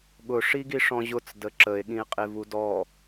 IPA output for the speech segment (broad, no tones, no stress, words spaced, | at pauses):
ɠʊ ʂiɡiʂɔ̃ʑʊt͡s dəǁəe̯ ɠĩe̯qʼevudɔ